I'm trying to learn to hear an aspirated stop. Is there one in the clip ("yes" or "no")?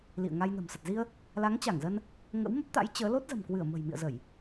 no